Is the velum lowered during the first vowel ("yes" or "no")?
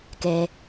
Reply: no